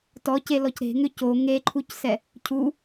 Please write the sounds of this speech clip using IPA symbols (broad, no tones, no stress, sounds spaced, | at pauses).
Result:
t ɔ c e l ɔ c ɾ e̤ ŋ ʏ c o ŋ e ǃʰ u c s ɛ | cʰ u